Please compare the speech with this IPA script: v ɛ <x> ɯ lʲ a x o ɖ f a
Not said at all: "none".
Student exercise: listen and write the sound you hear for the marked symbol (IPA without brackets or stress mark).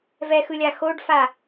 x